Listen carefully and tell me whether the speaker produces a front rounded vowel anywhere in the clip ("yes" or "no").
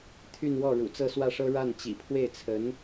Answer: yes